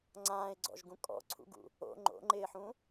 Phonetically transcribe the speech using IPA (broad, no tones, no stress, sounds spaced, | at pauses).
ŋ͡ǀ ãː ɪ̯ ɡ͡ǀ ɔ̰ ʒ ɡ ũ kʼ ɔ̰ ǀʰ ṵ ɡ ṵ | o̰ ŋ͡ǃ o̰ ŋ͡ǃ ɪː ħ ũ